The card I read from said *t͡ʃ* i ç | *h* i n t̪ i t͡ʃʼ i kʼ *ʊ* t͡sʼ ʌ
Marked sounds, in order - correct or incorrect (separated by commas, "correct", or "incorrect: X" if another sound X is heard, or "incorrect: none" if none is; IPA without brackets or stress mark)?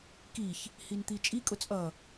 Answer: incorrect: k, correct, correct